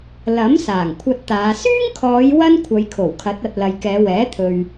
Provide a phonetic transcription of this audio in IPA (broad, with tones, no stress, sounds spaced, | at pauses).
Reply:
l ɐ˨˥ m s aː˨˩ ŋ kʷʰ ɐ˧ t̚ t̪ aː˨˧ s yː˥ ŋ kʰ ɔː˨˧ j w ɐ˥ n kʷʰ ɐ˨˧ j kʰ o˨˩ w kʰ ɐ˨˥ t̚ ɐ˧ t̚ l ɐ˨ j k ɛː˨˧ w ɛː˨˥ t̪ʰ ɵ˨ ɥ